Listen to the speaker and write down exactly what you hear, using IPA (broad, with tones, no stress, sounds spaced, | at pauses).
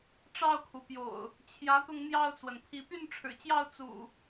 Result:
ʈ͡ʂ ɑ˥˨ ʊ̯ kʰ u˩ p j o̰˨˩ ʊ̯ | t͡ɕʰ j ä˨˦ t̪ ʊ˧ ŋ n̪ j ɑ˥˨ ʊ̯ t͡s w ə˩ n pʰ i˨˦ p y˥˨ n ʈ͡ʂʰ ɻ̩˨˩ t͡ɕ j ɑ˥˨ ʊ̯ t͡s ṵ˨˩